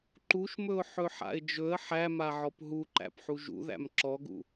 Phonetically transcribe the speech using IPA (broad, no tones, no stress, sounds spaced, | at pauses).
ǃ u ʃ m ɵ ʊ̯ ħ ɵ ħ a̰ ɪ̯ d͡ʒ ɵ ə̯ ħ æ m a ʕ ɔ p ɦ u ǃ æ̰ p ħ u ʒ ṵ ð æ̰ m ǁ ɔ ɡ ṵ